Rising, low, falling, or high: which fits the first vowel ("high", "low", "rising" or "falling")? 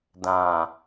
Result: low